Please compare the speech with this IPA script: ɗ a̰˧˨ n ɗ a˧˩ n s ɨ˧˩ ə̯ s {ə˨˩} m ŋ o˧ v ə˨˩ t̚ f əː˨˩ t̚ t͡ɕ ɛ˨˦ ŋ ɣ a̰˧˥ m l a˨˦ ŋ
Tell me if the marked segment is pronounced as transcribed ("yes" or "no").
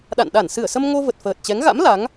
no